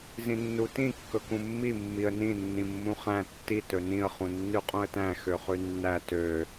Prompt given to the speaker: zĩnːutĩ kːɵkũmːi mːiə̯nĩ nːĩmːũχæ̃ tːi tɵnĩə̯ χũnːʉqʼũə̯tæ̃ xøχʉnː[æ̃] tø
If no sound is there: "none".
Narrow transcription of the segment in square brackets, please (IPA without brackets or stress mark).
æ